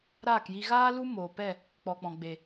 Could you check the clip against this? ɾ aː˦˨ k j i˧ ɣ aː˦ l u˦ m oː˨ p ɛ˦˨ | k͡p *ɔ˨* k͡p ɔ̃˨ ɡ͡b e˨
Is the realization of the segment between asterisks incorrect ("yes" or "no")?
no